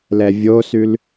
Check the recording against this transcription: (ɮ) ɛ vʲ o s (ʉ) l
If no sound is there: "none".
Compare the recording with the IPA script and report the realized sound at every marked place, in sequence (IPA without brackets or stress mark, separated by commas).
l, ʉ